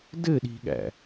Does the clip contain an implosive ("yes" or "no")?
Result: yes